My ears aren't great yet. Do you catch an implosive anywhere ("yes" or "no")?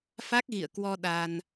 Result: yes